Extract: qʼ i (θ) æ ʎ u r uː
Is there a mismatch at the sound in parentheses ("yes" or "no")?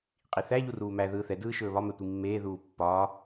no